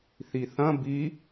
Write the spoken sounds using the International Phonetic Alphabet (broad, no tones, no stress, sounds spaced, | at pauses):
θ i θ ɐ̃ b i